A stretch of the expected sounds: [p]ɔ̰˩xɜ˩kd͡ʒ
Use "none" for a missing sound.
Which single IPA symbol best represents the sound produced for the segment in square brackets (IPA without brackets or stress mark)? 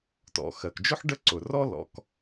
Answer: t